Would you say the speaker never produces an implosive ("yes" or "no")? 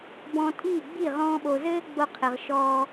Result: no